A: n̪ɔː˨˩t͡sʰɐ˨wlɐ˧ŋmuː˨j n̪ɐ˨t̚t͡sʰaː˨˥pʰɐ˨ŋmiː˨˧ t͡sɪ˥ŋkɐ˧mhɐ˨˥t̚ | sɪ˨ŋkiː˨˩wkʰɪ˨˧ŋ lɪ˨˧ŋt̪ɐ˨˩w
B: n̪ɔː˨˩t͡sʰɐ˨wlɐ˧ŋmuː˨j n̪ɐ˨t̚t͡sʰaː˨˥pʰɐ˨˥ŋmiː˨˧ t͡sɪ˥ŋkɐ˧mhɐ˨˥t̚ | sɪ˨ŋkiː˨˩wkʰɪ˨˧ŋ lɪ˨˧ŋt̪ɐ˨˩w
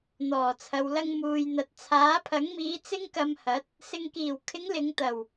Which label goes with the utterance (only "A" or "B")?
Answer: B